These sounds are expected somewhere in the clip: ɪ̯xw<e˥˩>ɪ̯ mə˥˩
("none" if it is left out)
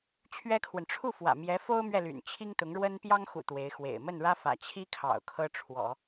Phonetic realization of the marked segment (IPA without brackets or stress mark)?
ḛ˨˩